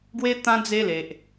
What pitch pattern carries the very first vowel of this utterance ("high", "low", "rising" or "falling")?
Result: high